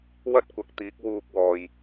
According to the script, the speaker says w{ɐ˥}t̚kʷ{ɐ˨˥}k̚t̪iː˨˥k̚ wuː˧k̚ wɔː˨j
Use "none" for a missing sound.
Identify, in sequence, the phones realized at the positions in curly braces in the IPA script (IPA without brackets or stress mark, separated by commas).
ɐ˥, ɐ˨˥